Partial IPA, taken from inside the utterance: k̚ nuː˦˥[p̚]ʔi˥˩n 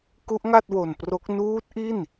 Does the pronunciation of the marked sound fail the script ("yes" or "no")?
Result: yes